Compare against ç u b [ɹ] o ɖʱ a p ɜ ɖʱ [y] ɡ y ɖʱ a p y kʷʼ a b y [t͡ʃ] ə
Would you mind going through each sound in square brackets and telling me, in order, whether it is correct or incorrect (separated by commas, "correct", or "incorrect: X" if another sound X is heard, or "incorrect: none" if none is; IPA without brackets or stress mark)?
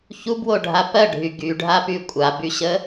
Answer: incorrect: w, correct, incorrect: ɕ